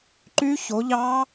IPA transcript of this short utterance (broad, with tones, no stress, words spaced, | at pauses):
ǃy˦˥ço˨˦ʎɑ˦˥